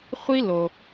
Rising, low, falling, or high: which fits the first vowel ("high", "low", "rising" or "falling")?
high